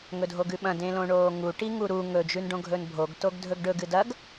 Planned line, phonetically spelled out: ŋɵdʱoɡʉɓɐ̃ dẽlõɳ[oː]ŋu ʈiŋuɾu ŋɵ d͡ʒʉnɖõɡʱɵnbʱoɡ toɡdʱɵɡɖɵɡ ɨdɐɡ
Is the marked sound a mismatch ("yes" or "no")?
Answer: no